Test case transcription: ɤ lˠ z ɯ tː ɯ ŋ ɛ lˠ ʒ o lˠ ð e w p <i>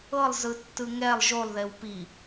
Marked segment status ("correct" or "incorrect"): correct